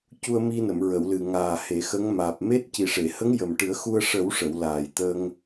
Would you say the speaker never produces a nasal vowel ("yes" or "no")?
yes